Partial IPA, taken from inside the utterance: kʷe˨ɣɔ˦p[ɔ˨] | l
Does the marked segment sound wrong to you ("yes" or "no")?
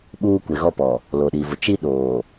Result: no